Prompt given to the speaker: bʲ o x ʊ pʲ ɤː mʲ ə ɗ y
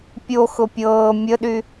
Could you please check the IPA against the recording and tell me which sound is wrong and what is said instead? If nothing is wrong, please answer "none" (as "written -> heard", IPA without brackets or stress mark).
bʲ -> pʲ